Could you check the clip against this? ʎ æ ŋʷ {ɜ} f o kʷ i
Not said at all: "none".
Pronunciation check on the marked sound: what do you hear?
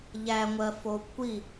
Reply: ɜ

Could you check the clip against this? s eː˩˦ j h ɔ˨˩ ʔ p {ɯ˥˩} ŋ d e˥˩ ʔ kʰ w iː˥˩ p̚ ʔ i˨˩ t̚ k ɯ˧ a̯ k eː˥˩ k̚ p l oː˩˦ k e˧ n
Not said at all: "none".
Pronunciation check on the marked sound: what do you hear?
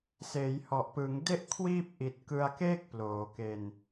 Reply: ɯ˩˦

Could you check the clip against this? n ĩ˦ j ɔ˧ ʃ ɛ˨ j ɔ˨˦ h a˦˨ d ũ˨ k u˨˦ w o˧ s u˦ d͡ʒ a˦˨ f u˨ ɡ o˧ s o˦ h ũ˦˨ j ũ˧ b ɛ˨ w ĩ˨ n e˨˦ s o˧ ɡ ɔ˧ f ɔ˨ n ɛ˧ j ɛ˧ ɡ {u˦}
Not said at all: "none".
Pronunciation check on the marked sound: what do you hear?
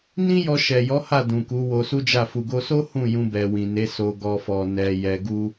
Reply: u˦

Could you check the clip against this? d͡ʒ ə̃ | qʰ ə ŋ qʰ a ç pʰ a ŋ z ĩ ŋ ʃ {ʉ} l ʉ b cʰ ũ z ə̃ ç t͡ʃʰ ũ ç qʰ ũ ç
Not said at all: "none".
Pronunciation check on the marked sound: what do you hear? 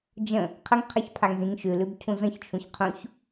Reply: ʉ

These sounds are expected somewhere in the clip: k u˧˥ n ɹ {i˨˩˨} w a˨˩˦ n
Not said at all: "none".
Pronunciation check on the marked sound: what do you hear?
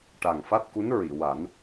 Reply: i˨˩˨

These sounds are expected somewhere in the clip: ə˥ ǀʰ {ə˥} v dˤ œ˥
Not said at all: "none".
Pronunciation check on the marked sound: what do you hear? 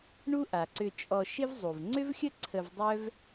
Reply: ə˧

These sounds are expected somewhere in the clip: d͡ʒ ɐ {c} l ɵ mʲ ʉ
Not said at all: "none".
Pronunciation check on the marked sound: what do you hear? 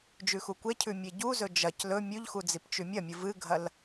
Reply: c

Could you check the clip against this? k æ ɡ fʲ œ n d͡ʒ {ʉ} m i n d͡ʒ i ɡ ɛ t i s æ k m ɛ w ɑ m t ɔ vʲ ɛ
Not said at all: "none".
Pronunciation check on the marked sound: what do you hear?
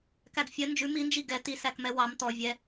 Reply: ʉ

